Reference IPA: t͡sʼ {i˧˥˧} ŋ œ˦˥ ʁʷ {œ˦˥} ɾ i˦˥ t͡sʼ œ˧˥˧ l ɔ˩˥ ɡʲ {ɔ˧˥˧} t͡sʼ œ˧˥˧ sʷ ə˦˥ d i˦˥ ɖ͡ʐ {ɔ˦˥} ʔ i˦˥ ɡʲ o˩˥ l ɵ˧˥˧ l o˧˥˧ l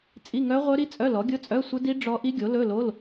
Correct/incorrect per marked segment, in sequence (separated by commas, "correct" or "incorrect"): correct, correct, incorrect, correct